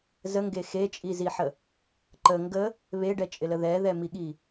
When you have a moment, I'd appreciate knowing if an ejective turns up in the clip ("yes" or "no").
yes